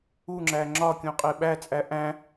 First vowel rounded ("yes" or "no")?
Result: yes